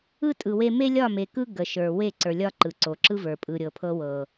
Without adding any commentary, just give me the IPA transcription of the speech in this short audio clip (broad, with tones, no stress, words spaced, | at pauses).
ɯ˦tʼɯ˨ we˦ me˦lʲɒ˦˨ me˨kɯ˦ ɡə˨ ʃə˞˨ we˦˨ǀə˞˨lʲɒ˦ ǃɯ˨ǀo˨ǁɯ˦və˞˨ pʼɯ˨ɾʲɤ˨pʰɤ˦wɤ˨